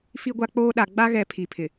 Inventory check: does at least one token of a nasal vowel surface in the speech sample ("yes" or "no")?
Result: no